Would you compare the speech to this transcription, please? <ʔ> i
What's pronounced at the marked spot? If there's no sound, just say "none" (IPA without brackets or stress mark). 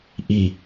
ʔ